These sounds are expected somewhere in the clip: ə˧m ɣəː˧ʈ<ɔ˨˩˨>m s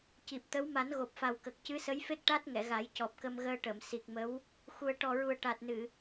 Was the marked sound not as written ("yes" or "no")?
yes